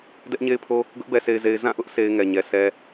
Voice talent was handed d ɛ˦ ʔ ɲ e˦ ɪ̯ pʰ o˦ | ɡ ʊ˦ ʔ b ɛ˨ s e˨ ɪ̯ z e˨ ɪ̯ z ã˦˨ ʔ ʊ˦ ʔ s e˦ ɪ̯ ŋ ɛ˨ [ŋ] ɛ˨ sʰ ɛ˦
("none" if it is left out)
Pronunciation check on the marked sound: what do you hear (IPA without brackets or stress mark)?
ɲ